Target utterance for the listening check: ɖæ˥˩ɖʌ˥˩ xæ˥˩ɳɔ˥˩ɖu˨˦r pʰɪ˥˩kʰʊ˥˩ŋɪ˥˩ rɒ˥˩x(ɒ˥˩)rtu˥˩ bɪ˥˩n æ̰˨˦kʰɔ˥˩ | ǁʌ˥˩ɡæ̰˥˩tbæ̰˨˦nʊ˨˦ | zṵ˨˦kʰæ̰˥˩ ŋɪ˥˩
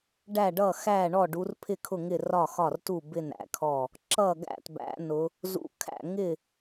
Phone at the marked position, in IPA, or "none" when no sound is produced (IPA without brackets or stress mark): ɒ˥˩